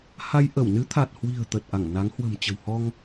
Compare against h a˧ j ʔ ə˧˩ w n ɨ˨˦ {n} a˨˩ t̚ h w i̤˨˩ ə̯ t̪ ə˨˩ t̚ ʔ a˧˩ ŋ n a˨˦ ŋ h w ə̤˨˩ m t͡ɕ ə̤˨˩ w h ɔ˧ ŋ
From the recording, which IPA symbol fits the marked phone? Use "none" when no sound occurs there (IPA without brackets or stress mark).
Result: t̪ʰ